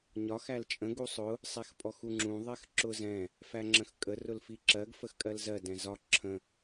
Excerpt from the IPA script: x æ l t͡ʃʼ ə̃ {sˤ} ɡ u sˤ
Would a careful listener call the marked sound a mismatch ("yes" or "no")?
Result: yes